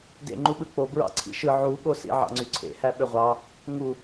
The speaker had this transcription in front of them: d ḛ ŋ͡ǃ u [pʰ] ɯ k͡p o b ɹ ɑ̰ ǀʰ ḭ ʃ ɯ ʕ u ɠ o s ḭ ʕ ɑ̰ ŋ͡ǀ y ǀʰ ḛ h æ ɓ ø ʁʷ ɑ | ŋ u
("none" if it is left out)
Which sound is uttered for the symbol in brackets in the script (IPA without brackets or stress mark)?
ɓ